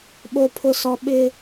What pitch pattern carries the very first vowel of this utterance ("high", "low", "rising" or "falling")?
high